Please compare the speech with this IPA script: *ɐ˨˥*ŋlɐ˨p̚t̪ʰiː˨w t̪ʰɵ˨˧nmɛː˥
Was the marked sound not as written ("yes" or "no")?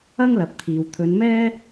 yes